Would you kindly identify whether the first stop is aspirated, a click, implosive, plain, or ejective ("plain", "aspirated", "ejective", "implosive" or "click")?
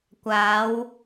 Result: plain